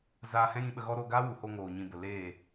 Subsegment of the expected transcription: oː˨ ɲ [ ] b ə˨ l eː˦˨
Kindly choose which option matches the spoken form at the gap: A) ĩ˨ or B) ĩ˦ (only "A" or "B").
A